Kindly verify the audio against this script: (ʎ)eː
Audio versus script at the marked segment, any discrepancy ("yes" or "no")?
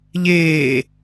no